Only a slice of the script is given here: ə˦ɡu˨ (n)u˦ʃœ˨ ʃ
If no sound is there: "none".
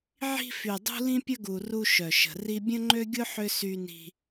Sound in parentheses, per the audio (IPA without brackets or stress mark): r